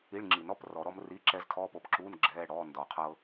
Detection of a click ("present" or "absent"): present